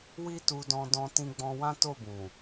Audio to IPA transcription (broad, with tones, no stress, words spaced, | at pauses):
wi˦tu˧dɔ̃˧dɔ̃˧ tĩ˧ɡ͡bɔ̃˧ wã˦to˦˨bũ˨